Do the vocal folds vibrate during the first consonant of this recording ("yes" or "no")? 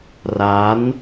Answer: yes